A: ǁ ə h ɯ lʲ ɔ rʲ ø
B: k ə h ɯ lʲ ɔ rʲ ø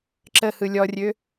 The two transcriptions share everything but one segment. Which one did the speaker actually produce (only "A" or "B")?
A